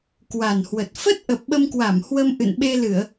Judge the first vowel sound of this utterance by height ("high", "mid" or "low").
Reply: low